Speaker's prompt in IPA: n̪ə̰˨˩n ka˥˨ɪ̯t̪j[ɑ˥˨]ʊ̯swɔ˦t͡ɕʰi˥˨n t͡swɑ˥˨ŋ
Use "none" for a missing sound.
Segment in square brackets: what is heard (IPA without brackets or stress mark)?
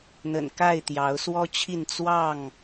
ɑ˨˦